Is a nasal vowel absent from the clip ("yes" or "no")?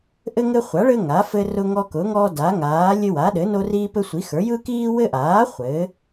yes